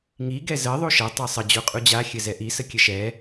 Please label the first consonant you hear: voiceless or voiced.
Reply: voiced